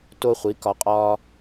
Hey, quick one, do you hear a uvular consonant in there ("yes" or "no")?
yes